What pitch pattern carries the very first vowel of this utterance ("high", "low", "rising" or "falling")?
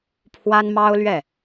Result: high